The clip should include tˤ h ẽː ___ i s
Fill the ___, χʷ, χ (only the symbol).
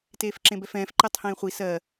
χʷ